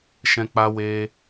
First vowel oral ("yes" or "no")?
no